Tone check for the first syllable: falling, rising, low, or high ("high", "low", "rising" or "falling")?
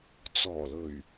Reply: low